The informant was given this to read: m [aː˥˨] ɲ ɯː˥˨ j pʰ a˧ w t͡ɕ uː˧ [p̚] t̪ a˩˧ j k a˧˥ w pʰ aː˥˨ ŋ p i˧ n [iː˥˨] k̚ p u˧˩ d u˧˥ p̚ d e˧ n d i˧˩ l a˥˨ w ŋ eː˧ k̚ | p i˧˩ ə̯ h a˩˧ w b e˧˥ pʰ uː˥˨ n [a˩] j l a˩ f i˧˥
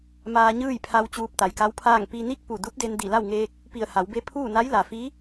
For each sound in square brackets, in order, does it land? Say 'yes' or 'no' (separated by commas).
no, yes, no, no